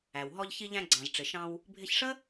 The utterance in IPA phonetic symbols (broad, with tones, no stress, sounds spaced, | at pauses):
æ˩ w ɦ ɔ˧ ʎ ç i˧ ʎ æ̃˧ ɡ͡ǀ ɑ̃˩ z ʈ͡ʂ ɪ˩ ʃ ɑ̃˧ w | bʱ ɪ˧ ç ʂ ə˥